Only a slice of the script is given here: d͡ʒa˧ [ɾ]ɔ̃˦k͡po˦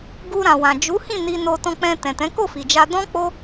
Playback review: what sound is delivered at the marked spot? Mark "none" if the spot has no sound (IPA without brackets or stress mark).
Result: d